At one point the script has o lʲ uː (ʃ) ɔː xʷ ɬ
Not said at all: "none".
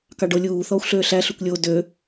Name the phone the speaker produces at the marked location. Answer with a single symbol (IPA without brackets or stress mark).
θ